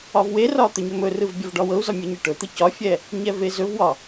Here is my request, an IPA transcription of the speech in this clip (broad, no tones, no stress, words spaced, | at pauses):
ɒvwerɒ t̪ɵɲɵmɵrɯv bʲɒvɖɒwɤu̯zɒ mʲɯɲɯʈɵt̪ɯ cɒfʲɛ | ɲɛvezɵvwɒ